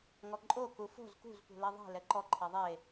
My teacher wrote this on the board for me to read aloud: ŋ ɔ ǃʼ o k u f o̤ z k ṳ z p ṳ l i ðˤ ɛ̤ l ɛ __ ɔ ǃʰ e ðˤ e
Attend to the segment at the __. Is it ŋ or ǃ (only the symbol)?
ǃ